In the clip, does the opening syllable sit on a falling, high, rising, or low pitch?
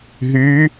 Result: rising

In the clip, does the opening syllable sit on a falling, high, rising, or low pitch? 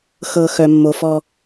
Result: low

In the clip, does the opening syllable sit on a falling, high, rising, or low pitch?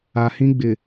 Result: low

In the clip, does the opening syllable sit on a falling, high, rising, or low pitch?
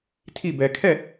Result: falling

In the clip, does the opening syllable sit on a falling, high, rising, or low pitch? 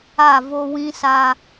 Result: falling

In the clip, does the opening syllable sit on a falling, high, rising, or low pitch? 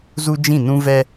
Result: high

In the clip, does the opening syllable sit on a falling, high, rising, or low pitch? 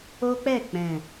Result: high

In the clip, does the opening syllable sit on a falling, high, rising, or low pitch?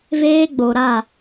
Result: high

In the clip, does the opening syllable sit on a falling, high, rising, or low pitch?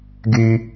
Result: high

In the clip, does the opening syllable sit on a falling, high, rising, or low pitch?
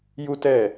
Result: high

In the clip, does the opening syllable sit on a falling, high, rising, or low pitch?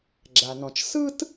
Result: low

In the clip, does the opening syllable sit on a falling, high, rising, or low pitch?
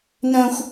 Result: high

